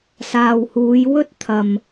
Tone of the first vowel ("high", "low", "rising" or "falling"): low